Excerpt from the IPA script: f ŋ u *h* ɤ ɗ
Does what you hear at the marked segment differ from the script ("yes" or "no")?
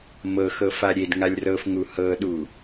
no